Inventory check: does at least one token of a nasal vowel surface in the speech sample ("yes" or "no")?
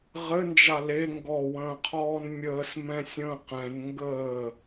yes